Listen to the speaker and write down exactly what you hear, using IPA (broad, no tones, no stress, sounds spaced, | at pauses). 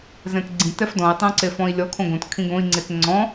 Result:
z ɛ̃ t ɡ͡ǀ ĩ t ɛ f d ɔ̃ i̯ tˤ õ ǀ e f ɔ̃ i̯ lʲ ɔ kʰ õ ɡ õ t kʰ ĩ ɡ õ i̯ ŋ͡ǀ e t ŋ͡ǀ ɔ̃